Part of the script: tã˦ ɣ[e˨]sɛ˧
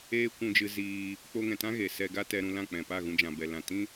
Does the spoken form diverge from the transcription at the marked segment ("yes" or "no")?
no